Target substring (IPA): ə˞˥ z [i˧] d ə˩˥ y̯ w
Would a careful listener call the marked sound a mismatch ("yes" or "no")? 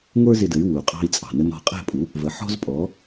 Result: yes